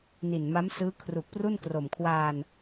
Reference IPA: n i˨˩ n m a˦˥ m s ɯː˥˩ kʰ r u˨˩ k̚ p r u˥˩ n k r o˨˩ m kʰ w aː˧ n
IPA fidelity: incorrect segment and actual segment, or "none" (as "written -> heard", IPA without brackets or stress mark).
ɯː˥˩ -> ɯː˦˥